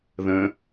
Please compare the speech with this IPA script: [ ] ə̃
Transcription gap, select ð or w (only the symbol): ð